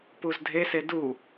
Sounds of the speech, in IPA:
puzdʱese du

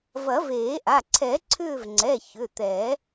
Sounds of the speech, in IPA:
vɐ˨˩˦veː˨˩˦ʔa˩˧˩ ǀʰɛ˨˩˦ǀʰʏː˦˨vŋ͡ǀɛ˩˧˩ çʏ˩˧˩t̪ɛ˨˩˦

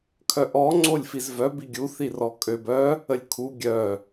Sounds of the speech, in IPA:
kʰœʔɔ ŋ͡ǀolʲfizvœ biɡʲu θirɔkʼøb œ | əlʲkʰu ɡʲœ

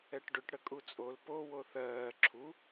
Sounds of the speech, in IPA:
ɛʈɖʏʈ ɽəkʼut͡sʼol po woθɜː ǁʰu

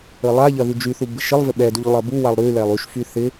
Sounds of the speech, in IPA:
ɘlˠaʎɐ ðyd͡ʒyθu bɪʃɪlˠvɪ ɓɛduʎ lˠɐbuwalˠ ɾy lɛlˠyʃfy θɪ

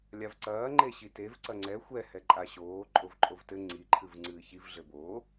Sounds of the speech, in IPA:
lʲavǀɐː ŋ͡ǃeɕitev ǀɐŋ͡ǀɛ xʷɛ hɛǃʼaɕoː ǃʼovǃʼovtɘ ŋ͡ǀi ǃʰɨvŋ͡ǀɨːçiv ɮɘboː

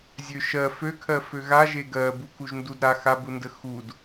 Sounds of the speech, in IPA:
zʲøʃɜ føkʰɜ føɣa ʒeɡɜ bukuʒndudɾa xabundə xud

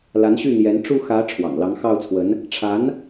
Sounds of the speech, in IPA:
la˧˥nɕy˥˩n̪jɛ˧˥n ʈ͡ʂu˥˩ xä˧˥ ʈ͡ʂʰwɑ̰˨˩ŋlɑ˧˥ŋ xɑ˥˩ʊ̯t͡sʰwə˧˥n | ʈ͡ʂʰa˧˥n

